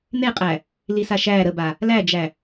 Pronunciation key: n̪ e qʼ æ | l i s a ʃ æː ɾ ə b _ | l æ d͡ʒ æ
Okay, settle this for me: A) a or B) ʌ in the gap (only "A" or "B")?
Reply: A